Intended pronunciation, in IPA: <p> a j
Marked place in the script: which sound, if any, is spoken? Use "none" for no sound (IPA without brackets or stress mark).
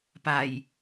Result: p